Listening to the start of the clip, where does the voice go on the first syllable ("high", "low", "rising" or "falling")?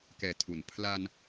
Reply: low